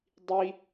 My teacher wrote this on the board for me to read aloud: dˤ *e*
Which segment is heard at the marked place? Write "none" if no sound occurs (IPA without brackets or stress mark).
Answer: i